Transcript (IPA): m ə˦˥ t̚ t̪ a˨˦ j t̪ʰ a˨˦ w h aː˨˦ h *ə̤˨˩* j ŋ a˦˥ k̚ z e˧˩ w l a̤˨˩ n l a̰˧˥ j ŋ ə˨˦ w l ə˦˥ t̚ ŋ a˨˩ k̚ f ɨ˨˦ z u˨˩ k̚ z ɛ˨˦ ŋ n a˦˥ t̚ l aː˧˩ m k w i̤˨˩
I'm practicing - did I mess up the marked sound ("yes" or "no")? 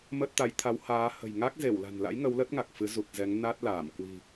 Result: no